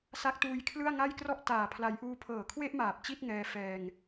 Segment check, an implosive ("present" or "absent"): absent